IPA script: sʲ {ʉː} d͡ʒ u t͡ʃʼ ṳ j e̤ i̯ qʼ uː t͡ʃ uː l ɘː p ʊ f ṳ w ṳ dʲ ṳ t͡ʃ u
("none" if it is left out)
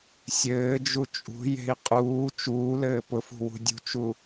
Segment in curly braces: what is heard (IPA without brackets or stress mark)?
ɘː